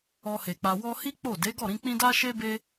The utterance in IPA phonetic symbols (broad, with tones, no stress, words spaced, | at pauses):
ɔ˧he˨k͡pa˧ wɔ˧hi˦ k͡po˦˨ de˨˦ɡɔ˦˨ ɾĩ˧k͡pĩ˦ da˦ʃe˦be˦